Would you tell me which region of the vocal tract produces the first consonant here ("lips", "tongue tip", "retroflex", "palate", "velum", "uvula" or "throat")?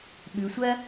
lips